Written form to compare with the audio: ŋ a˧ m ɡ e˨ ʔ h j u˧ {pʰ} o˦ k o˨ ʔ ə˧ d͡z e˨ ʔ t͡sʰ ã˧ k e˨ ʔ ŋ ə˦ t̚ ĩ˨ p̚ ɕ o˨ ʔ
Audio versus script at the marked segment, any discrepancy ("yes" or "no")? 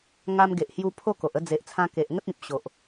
no